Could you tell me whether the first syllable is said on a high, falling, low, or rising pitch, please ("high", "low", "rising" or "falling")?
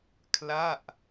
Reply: falling